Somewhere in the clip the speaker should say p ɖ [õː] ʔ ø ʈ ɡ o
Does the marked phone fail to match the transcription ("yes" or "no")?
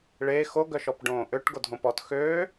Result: no